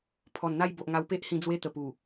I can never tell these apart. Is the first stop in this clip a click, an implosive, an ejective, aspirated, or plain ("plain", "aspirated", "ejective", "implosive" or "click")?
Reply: aspirated